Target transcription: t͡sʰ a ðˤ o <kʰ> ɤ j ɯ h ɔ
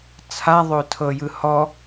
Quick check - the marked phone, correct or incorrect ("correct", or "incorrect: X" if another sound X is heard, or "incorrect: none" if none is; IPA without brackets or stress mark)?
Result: incorrect: tʰ